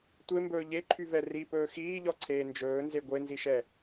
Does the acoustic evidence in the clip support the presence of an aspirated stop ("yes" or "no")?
yes